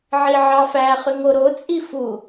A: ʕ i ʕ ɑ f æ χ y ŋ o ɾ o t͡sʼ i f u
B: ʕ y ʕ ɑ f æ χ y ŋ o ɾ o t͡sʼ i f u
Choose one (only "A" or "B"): A